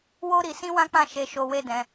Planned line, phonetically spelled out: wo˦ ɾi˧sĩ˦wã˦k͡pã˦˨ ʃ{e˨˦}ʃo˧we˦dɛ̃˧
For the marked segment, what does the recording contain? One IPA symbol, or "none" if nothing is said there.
e˧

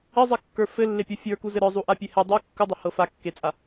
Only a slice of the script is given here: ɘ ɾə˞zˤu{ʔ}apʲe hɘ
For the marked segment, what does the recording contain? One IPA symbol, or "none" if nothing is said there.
ʔ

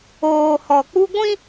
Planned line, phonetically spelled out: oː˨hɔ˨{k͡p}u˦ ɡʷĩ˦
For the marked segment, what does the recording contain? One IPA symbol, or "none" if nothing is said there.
k͡p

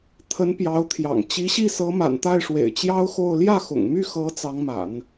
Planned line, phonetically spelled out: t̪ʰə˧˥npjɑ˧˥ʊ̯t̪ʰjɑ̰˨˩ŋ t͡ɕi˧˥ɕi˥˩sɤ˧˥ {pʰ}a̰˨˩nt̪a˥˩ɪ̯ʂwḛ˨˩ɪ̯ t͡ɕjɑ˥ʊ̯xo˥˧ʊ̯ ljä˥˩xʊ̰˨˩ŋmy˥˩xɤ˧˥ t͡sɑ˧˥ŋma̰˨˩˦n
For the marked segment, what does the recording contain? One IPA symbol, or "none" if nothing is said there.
m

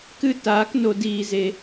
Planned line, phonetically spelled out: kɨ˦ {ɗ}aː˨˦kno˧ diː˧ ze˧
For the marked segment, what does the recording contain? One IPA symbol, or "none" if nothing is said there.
t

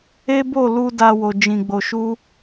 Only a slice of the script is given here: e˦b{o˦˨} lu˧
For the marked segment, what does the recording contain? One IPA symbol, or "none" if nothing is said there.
o˦˨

